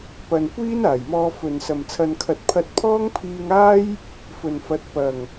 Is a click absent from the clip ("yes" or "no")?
yes